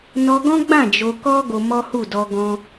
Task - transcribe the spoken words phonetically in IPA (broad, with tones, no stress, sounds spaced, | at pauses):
n ɔ˧ ɡ ɔ̃˦ ɡ͡b ã˦˨ d͡ʒ o˧ k ɔ˦ ɡ o˧ m ɔ˦ h u˦˨ d ɔ˧ ɡ ɔ̃˧